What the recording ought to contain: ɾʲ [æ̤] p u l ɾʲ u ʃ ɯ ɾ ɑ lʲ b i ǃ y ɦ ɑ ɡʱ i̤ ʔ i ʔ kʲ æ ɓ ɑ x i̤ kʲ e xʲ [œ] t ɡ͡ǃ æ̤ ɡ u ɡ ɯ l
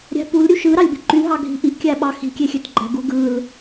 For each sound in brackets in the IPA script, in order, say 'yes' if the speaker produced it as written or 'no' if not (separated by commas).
yes, no